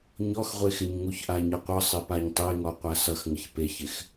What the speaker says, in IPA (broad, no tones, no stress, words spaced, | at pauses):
ɲɔxʁʷexɪɲ ŋuçʔaɲʌqʷʌ sˤɪpaɲtˤeŋɔ qʷasʌx ŋɪçpeçɪx